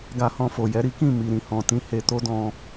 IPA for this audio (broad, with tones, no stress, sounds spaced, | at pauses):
ɡ a˧ h ɔ̃˧ f o˨ j ɛ˨˦ ɾ i˦ k ĩ˦˨ m i˨ ɾ ĩ˨ h ɔ̃˨ t ĩ˧ h e˧ t o˦ d ɔ̃˧